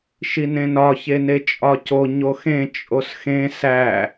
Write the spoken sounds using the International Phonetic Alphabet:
ʃ i n ẽ n ɒ ç e n e t͡ʃʼ ɒ c o ɲ o x ẽ t͡ʃʼ o s x ẽ s æ

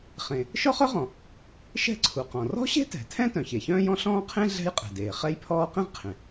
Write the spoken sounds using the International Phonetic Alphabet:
χ ẽ˩ | ʃ ɔ˥ χ œ˥ ʁ ɔ̃˩ | ʃ ɛ̤˥ ǀʰ u˩ q ɔ̃˩ r ɔ̤˥ ɕ e̤˥ t ɛ̤˩ tʰ ɛ̃˥ t œ̃˩ ç e˩ ç œ̃ː˥ j ɔ̃˥ ɬ ɔ̃ː˥ qʰ ẽ˥ ɮ ɛ̤˥ j qʼ ɛ̤˩ d eː˩ χ ɛ˥ j pʰ ɔː˥ q ẽ˥ ʁ qʰ ẽ˩

